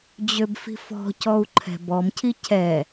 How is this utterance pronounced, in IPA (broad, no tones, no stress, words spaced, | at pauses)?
d͡ʑøbfi̤fɔ̤cɔu̯ ǃʰɛ̤bɔmcʰi cʰɛ